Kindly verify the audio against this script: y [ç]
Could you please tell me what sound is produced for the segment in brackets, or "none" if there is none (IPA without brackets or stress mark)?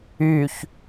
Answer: ç